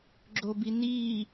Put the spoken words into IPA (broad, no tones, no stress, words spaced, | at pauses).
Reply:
ɡ͡ǁobiniː